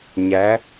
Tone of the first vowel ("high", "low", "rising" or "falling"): rising